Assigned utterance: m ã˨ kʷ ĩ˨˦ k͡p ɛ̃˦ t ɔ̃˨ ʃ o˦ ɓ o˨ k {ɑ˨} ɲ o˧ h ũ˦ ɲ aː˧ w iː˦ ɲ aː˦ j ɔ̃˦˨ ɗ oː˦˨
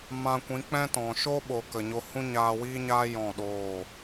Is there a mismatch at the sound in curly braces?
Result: yes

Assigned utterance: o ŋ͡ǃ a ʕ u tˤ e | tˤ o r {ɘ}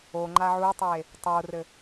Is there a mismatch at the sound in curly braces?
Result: no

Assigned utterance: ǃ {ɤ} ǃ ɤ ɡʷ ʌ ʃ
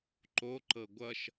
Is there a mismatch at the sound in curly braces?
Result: yes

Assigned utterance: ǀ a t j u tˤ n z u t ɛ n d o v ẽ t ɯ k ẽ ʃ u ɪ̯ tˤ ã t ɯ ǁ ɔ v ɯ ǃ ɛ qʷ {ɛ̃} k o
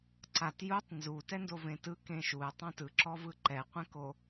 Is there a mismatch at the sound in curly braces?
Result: no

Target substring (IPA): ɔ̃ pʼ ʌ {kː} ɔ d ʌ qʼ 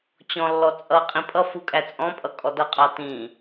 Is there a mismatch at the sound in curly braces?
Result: yes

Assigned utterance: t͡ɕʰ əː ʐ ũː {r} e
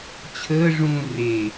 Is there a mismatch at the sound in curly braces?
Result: no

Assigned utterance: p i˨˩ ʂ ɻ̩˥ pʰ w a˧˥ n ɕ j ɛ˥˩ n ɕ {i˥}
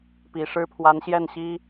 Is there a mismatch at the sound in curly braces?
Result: no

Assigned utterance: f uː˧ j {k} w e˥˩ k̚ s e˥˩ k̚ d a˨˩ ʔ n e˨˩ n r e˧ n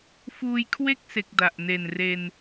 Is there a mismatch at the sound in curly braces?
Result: yes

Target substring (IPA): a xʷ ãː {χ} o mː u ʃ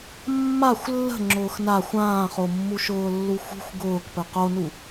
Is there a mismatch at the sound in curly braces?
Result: no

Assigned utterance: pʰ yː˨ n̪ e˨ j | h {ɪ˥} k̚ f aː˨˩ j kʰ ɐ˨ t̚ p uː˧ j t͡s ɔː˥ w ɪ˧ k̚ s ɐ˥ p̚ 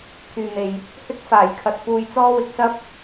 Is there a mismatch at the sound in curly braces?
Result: no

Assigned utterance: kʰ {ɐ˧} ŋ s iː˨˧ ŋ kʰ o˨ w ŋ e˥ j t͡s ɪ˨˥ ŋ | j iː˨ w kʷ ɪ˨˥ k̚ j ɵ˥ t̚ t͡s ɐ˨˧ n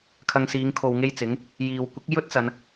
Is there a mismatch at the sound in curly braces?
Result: no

